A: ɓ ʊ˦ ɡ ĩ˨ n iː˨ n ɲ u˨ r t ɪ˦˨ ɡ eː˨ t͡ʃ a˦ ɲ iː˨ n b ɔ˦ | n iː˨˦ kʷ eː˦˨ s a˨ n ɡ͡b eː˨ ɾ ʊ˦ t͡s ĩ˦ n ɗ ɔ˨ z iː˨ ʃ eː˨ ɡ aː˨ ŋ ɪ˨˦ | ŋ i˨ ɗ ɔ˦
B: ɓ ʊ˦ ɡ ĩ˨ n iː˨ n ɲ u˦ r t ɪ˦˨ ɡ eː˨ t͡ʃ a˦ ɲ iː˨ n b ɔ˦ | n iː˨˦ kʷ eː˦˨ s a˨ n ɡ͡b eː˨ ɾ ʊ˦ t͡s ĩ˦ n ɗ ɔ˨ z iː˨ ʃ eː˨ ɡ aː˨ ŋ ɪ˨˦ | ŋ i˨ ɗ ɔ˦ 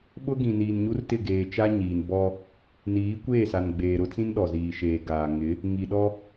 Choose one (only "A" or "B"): B